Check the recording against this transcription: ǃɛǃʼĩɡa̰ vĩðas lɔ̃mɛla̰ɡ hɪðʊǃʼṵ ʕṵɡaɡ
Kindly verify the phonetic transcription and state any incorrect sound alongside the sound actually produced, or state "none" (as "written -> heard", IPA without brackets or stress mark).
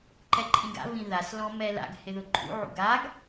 none